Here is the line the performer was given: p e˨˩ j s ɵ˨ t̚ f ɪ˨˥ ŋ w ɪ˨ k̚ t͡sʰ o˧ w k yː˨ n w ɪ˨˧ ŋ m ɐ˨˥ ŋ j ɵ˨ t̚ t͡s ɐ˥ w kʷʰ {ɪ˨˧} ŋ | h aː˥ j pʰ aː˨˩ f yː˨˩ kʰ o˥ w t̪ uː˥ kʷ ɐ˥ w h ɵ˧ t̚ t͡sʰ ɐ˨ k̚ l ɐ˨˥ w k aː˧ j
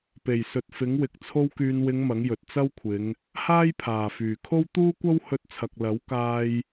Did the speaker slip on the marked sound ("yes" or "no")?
no